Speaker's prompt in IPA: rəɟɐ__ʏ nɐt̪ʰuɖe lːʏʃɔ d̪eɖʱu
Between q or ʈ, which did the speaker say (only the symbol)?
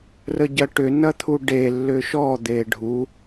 ʈ